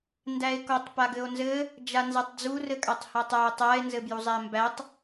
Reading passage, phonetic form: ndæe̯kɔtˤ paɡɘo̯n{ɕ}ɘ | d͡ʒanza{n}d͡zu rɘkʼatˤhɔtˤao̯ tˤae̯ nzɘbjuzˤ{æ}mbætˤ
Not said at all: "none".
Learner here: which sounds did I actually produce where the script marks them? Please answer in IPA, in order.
z, tˤ, æ

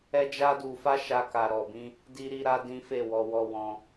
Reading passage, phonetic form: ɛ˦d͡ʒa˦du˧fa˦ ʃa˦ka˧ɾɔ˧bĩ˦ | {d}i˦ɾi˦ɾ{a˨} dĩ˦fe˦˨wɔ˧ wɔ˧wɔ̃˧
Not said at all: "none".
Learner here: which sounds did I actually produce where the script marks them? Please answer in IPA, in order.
d, a˦

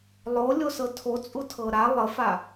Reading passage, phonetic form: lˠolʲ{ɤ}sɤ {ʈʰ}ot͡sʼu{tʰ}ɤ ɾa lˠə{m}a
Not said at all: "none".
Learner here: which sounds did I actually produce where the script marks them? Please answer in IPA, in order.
o, tʰ, tʰ, f

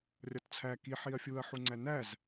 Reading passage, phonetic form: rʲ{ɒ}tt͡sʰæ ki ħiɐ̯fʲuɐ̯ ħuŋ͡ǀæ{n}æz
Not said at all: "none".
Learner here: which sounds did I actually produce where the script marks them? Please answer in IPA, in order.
ɒ, n

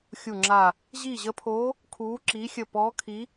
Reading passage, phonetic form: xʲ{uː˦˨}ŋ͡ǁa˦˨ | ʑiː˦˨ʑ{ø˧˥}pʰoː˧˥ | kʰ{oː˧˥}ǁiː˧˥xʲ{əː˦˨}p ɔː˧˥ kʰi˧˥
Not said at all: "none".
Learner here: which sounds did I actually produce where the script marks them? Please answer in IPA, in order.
u˦˨, ə˧˥, uː˧˥, əː˦˨

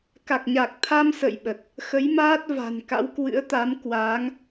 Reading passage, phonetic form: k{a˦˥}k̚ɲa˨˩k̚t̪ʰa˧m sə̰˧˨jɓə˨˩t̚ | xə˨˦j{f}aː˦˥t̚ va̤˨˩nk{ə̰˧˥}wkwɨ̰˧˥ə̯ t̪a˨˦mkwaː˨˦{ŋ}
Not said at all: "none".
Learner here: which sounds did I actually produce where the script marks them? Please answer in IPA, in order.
a˨˩, m, a̰˧˥, ŋ

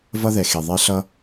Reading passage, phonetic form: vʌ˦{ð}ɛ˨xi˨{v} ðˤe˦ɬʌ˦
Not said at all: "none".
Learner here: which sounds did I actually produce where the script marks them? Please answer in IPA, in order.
ð, none

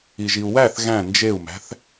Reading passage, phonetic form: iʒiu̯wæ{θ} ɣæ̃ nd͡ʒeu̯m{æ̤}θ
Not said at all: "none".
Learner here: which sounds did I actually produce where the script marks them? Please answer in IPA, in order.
θ, æ̤

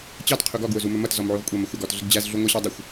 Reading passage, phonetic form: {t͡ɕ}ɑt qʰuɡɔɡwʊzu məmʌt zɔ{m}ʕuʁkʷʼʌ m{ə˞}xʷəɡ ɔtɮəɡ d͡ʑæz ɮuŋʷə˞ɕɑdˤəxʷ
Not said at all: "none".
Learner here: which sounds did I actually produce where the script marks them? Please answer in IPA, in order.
t͡ɕ, m, ʌ

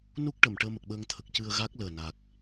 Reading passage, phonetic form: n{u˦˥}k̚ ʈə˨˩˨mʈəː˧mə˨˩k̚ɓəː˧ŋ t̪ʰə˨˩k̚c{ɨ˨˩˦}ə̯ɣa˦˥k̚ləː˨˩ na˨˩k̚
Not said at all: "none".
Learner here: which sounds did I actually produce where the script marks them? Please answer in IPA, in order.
u˦˥, ɨ˧

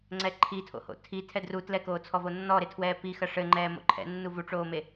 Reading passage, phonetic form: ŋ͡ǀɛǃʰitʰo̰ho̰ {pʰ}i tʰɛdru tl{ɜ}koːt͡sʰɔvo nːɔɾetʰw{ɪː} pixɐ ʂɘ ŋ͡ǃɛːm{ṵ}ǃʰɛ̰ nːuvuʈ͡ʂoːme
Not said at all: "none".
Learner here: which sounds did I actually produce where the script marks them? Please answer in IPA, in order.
tʰ, ɛ, ɛː, o̰

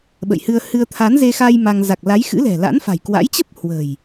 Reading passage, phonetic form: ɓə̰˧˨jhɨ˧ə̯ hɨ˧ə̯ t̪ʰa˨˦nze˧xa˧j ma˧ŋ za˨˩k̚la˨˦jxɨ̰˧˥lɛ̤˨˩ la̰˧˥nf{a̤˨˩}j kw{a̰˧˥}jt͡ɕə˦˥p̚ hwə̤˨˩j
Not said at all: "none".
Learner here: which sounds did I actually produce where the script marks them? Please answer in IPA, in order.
a̤˨˩, a̰˧˥

